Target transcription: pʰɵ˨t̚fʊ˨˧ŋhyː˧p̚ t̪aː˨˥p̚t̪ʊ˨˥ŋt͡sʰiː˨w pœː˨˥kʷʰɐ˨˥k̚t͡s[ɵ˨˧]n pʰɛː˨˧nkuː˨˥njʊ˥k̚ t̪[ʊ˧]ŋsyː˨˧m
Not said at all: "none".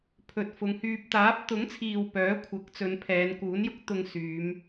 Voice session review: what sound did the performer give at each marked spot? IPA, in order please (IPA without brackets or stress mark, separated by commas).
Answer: ɵ˨˧, ʊ˧